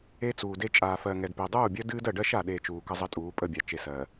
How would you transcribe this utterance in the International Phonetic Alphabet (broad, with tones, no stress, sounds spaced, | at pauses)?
e˦ t͡s uː˨ d e˦ t͡ʃʼ aː˨ f ɜ˨ ŋ ɛ˨ d p e˨ dˤ uː˦˨ bʲ ɜ˦ d ɨː˦ d ɜ˨ ɖ ɜ˦ ʃ a˨ ɗ e˨ t͡ʃ uː˨ k ə˦ zˤ ə˦ tʼ uː˨˦ pʼ ə˦˨ bʲ a˨ t͡ʃ e˨ s ɜ˨